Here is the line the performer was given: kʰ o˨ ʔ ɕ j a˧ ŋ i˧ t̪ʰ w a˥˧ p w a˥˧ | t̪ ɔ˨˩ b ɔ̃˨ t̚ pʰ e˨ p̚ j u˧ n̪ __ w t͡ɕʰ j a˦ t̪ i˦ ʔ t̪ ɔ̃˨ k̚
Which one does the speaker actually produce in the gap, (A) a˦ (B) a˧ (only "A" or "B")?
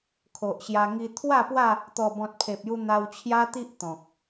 B